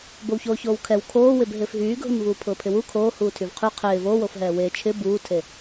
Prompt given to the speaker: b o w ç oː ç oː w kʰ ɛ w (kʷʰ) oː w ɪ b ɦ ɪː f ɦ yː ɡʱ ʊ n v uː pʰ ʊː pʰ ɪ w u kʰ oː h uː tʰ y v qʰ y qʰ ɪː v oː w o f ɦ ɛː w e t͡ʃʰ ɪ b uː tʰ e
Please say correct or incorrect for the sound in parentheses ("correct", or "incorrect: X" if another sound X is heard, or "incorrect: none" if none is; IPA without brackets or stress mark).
incorrect: kʰ